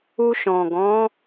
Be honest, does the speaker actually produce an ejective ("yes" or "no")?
no